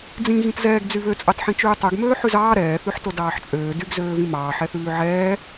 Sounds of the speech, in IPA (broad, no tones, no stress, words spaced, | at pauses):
d͡zĩ ɣĩtzɛːɡd͡zy βøt͡sʼɑt ħĩt͡ʃʉːtˤøɡ møːħʉzɑː ɾɛːθʉħto dɑːħt͡ʃʼøː dyɡzøː vĩmɑː ħɛθʉːʕɛː